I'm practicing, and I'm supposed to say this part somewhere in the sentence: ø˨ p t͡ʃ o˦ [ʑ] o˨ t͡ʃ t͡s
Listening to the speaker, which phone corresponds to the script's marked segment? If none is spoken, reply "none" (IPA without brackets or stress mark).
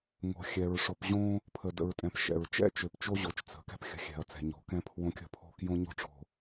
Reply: ʑ